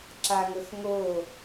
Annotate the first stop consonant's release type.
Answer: click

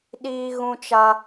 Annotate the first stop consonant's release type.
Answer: implosive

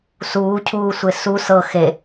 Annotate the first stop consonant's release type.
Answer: aspirated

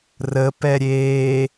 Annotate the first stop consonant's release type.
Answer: plain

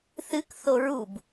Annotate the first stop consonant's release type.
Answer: plain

